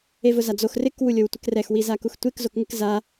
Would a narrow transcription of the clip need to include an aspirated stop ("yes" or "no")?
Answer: no